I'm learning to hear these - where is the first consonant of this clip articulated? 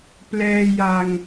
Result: lips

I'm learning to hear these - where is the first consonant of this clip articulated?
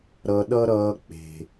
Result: tongue tip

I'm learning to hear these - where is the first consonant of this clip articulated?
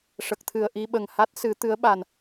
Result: retroflex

